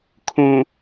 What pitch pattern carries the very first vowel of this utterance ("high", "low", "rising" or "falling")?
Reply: low